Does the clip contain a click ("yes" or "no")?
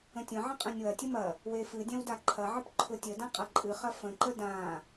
yes